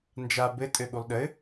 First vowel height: low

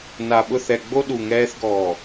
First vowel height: low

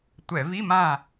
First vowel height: mid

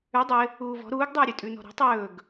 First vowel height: high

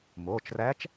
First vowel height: mid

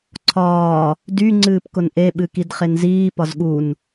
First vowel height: low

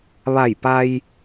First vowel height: low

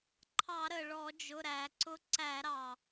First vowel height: low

